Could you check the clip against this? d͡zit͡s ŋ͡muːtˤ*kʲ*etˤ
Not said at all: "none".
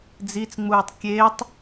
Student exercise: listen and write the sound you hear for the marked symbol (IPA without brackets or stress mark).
kʲ